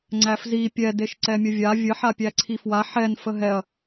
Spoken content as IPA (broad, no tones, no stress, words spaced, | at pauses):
ŋ͡ǀæfzi pʲɛ deʃǀɛmʲəvʲa vʲə ħapʲæǀʰifwa ħɛn fəɦɛɐ̯